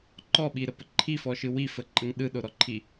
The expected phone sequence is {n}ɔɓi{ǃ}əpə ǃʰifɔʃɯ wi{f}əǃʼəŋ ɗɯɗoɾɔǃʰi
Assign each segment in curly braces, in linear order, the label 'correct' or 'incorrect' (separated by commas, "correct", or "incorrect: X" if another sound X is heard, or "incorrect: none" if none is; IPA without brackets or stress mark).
incorrect: ǃ, incorrect: ɾ, correct